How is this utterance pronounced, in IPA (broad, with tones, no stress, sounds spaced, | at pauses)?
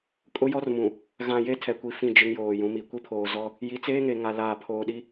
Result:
kʼ ʊ˦ j ɔ˦ r m ũ˨ | ɣ ã˨ j e˦ tʰ ɛ˨ kʷ i˨ f ĩ˦˨ d͡ʒ ɪ˦ ŋ j oː˨ j ũ˨˦ m i˨ kʷ i˦ pʰ oː˨ z ɔ˦ | j i˨ t͡s eː˦ ŋ e˨ ŋ a˨ l aː˨ pʰ oː˨ ɗ i˦